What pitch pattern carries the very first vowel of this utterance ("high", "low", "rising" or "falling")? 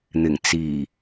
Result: low